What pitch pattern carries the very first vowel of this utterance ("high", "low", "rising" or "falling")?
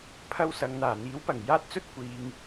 high